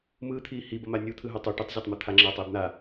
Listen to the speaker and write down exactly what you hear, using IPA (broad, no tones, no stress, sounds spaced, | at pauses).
m ɯː t̪ʰ iː h i b ʌ m a nʲ u t̪ʰ ɯ ɦ o tˤ u ʈ ɯ tˤ zʲ o tˤ m ɯ t̪ʰ a ŋ͡ǁ aː tˤ eː b n̪ a